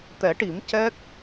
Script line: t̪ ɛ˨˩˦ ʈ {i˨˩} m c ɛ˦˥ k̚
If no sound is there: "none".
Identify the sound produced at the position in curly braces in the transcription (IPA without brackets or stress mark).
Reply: i˨˩˦